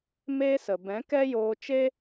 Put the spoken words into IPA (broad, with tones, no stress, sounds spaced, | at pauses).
m e˦ s ə˨ b ɛ̃˨˦ k ɛ˦ j oː˧ t͡ʃ e˦